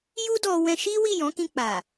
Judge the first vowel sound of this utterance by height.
high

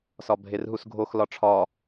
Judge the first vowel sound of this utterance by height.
low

